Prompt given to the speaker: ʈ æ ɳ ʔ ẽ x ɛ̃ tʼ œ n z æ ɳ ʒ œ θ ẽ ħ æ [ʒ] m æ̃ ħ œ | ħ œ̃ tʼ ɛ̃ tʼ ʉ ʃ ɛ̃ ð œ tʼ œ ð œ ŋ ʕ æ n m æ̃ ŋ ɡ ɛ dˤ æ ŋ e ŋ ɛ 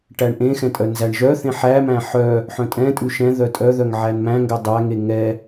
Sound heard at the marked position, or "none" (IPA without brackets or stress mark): none